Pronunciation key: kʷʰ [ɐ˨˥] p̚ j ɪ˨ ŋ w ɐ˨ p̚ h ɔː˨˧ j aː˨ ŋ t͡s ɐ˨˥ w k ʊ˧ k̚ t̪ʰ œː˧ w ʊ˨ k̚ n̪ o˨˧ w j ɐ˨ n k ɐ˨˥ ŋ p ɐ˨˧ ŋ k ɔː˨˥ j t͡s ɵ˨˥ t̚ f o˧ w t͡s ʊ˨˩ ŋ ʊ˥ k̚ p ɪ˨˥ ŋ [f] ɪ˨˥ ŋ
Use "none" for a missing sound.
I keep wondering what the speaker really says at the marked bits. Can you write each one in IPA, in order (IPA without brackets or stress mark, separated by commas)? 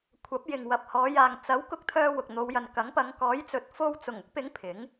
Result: ɐ˨˥, pʰ